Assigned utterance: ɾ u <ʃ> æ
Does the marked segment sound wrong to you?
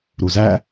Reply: yes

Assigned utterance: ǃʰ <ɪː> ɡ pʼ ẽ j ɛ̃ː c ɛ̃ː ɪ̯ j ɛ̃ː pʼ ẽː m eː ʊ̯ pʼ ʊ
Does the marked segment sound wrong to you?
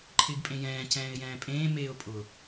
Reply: no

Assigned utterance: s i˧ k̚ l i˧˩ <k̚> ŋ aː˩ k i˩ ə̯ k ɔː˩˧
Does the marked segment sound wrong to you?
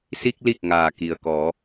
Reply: no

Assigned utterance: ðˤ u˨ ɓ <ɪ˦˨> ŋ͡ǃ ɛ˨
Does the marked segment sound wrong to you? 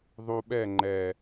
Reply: yes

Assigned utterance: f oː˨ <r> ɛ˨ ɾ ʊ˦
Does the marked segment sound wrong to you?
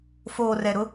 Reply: no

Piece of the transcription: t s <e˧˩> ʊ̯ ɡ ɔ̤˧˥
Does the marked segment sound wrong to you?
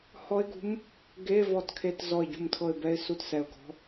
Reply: yes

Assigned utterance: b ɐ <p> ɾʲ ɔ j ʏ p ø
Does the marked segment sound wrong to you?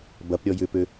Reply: no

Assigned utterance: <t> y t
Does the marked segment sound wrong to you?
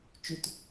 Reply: yes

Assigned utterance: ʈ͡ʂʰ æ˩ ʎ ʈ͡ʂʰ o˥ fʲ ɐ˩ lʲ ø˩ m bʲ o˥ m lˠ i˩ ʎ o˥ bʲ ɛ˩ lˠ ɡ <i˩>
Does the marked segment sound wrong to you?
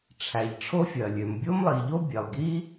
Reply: yes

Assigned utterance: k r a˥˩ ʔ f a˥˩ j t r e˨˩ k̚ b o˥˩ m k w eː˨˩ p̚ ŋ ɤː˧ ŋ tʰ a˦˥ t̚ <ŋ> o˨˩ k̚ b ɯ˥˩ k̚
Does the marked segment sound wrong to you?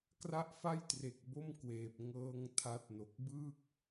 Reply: yes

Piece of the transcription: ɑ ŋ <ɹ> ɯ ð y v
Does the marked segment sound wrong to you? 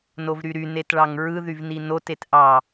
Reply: no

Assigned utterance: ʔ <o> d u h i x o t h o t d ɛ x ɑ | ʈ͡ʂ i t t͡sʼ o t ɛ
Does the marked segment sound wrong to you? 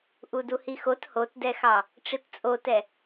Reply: yes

